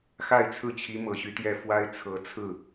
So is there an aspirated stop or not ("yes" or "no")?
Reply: yes